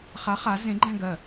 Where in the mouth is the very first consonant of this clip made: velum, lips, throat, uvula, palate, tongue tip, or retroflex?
uvula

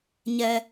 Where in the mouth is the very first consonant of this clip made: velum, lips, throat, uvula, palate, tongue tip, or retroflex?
palate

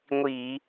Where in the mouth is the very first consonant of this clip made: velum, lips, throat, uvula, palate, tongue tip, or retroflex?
velum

